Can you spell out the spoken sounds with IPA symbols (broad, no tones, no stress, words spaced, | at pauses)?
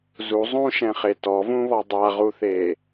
zu zˤũʃɛ̃χe tɔvũβɔ dˤaʁuθe